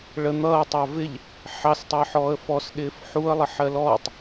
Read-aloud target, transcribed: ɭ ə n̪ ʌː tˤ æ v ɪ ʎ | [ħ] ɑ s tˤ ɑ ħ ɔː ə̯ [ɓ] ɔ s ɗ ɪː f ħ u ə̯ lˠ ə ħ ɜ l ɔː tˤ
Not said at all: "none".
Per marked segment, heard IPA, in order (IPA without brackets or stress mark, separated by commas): ħ, f